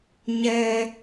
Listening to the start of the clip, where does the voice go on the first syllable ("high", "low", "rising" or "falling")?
high